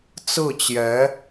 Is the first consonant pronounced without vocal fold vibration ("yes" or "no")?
yes